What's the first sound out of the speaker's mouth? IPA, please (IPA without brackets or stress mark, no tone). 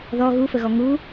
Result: ð